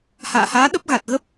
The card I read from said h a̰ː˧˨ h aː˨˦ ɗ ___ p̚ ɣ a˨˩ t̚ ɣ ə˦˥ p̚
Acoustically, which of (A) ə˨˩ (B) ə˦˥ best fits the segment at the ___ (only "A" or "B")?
B